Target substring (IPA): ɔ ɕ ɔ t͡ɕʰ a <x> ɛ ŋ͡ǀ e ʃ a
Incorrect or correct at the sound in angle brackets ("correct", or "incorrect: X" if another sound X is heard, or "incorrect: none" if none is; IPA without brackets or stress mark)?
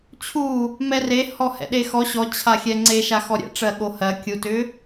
incorrect: xʲ